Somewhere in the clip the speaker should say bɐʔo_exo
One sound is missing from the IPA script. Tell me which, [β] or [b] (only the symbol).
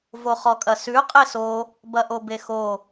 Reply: b